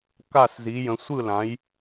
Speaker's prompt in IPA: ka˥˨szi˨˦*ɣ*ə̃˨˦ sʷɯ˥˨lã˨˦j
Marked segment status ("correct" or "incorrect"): incorrect